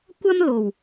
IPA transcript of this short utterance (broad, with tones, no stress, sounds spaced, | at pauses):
kʷ ɐ˥ m l o˨˩ w